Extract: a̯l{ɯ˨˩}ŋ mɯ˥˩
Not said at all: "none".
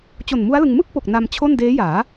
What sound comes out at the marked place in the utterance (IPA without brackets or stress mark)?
ɯ˧